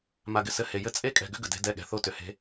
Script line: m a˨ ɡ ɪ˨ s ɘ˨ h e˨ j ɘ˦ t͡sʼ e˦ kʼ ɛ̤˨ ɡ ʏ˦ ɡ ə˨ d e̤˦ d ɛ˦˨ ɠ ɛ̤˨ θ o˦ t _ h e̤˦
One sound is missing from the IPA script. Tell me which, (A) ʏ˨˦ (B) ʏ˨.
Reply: B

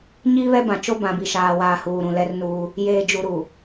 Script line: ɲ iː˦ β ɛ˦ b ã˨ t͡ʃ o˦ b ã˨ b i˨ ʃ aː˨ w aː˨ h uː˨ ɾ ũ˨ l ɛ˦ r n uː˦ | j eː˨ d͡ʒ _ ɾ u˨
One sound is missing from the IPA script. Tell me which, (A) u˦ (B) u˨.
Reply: B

